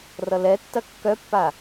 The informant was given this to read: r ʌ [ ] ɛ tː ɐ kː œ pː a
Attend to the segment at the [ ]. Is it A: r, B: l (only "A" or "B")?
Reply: B